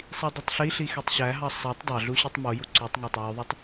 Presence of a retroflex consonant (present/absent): absent